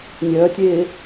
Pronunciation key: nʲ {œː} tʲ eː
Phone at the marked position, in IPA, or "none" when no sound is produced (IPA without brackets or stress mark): œː